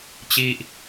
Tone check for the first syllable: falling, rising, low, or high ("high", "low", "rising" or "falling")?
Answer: high